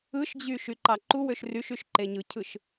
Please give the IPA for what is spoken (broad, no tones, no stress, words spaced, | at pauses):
ɯʃd͡ʑy ʃyǃɑǃuwøʃ ryʃyʃ ǃeɲɯcʰɯʃ